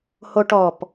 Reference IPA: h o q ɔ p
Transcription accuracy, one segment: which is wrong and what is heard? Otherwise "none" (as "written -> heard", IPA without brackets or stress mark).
q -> ʈ